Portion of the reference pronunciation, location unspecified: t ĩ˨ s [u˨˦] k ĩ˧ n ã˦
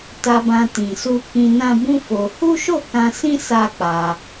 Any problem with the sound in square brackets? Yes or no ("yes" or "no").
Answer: yes